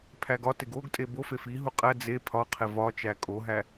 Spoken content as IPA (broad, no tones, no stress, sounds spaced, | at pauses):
pʰ æ ɡ ɒ t e ɡ o ɡ tʼ e b o f e f i ɦ u qʼ æ d͡z e pʰ ɒ qʰ e v ɒ t͡ʃ æ kʼ o ɦ æ